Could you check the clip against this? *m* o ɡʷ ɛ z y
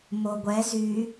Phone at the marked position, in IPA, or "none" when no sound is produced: m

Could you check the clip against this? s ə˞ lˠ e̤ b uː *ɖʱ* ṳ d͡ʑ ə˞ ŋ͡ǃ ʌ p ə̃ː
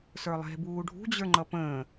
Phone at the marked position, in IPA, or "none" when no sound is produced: ɖʱ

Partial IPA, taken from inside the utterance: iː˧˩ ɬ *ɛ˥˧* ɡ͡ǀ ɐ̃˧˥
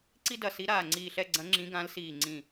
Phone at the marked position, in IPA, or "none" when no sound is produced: ɛ˥˧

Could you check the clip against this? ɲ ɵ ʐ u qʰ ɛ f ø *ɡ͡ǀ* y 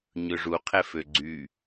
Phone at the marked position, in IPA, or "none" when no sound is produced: ɡ͡ǀ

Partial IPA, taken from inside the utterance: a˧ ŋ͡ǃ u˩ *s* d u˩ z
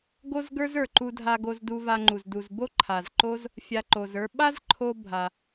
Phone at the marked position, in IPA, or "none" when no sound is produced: z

